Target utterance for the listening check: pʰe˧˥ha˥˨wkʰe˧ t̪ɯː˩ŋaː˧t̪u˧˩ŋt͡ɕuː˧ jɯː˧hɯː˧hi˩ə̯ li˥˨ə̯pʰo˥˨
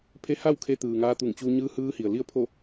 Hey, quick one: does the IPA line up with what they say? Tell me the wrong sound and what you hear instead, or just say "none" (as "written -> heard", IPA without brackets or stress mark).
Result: j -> ɲ